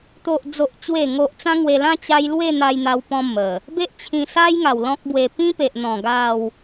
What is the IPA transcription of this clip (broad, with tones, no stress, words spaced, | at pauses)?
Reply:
t̪o˨ʔd͡zo˨ʔ t͡ɕwe˨˩ŋo˨ʔ t͡sã˦ŋwe˧lã˦ t͡ɕa˦j lwe˥˧n̪a˧jn̪a˧wpɔ̃˧ mə˨˩ | be˦ʔt͡ɕʰĩ˧sa˦j ŋa˨˩wlɔ̃˦k̚bwe˧ pĩ˦pe˨ʔn̪ɔ̃˨˩ ɡa˥˧w